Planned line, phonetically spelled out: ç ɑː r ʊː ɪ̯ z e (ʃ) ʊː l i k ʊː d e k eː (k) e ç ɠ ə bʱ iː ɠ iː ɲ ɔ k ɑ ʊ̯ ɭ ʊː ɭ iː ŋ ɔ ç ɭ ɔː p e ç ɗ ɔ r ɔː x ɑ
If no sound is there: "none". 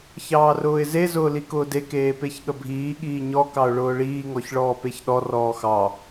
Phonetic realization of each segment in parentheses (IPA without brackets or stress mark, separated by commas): z, p